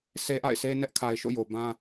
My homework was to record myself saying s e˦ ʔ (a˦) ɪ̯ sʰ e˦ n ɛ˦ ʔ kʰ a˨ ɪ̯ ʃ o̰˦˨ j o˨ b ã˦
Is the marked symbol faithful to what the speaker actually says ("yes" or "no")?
no